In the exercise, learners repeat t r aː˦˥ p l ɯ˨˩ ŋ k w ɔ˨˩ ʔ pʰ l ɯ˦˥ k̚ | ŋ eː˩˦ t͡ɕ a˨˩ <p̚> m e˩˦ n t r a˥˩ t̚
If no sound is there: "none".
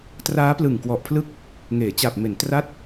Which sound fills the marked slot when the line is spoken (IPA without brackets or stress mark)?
p̚